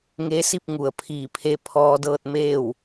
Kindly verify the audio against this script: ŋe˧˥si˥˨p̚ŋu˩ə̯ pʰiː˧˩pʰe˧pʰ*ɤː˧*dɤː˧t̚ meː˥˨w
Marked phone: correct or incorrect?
incorrect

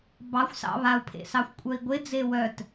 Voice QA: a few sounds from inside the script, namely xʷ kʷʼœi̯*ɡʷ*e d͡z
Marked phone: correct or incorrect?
correct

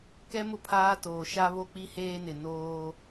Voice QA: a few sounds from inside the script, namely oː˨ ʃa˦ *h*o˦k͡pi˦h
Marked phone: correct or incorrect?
incorrect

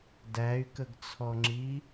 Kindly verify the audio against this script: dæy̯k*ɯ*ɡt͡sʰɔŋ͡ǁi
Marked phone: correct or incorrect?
incorrect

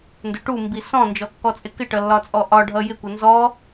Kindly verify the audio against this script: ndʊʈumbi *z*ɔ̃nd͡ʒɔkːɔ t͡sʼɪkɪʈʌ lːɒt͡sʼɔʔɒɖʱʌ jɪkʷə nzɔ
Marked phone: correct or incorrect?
incorrect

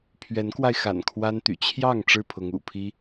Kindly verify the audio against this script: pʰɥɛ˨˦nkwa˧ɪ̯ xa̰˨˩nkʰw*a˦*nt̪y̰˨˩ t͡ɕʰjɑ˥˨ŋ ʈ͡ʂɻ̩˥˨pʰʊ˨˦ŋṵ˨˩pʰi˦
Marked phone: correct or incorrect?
correct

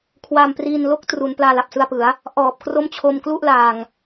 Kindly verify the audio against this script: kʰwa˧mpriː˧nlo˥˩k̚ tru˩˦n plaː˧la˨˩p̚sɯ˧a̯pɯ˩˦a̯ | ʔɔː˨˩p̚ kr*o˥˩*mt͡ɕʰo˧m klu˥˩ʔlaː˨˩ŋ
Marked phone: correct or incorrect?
correct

